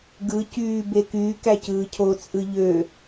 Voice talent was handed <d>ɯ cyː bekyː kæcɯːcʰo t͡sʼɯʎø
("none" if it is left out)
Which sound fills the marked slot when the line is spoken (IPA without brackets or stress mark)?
ɡ